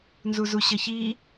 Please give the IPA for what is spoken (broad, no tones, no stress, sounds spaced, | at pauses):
n z u z u ɕ ə ç i